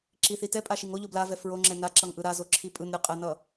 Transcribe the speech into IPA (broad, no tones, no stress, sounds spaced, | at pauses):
ǁ i θ i t ɛ pʼ a ʃ i ŋ o ʎ o b l a v ɛ f ɹ o ŋ͡ǁ ɛ n a ǁ ʌ ŋ ʔ ɯ ɾ a z o ǁʰ i pʼ ɯ n ɾʲ ɯ qʼ ɛ n ʌ